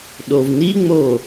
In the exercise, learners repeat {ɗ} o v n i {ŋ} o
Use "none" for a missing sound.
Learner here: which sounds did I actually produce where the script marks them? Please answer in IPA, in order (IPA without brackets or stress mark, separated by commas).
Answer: ɗ, ŋ͡m